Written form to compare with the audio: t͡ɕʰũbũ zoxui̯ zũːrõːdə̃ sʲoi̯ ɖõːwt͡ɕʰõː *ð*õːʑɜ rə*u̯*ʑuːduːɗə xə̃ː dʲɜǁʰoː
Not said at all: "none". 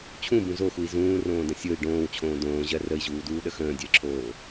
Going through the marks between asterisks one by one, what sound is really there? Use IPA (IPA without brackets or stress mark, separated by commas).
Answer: d, i̯